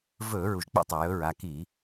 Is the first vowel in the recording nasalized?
no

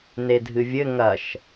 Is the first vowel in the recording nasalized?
no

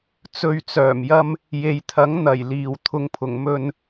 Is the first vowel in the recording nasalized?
no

